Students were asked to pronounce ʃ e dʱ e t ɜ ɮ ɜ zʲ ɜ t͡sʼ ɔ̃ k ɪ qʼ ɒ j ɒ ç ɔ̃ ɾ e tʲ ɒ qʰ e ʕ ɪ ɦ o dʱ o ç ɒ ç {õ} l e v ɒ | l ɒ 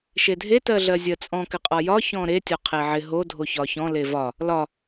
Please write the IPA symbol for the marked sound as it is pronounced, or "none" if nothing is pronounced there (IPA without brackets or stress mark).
ɔ̃